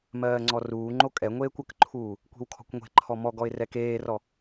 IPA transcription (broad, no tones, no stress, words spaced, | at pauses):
mɜːŋ͡ǀɔruːŋ͡ǃo kʼɛŋʷeːkʷ əkǃʰuː | kʷe̤wkʰɔ̤kʷŋʷe̤ǃʰɔ mɔɡɔɪ̯ rɛkeːrɔ